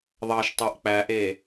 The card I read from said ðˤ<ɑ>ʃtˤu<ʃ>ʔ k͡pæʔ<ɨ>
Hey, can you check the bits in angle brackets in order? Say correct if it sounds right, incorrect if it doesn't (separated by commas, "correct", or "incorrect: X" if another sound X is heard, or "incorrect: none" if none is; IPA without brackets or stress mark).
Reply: correct, incorrect: none, incorrect: e